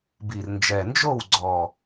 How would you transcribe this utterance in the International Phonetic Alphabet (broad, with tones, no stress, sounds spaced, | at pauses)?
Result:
b i˨˩ r n d͡ʒ ɛ˨˩ n d͡ʒ o˥˨ w ɡ͡ǀ ɔ˨˩